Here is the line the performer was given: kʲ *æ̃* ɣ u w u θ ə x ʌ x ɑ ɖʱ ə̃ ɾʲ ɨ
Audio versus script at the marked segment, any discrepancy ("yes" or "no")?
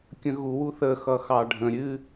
yes